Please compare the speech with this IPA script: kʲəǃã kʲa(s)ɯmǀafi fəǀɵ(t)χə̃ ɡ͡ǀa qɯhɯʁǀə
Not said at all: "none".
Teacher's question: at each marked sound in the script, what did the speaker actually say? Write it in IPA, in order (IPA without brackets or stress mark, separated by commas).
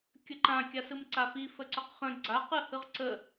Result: s, q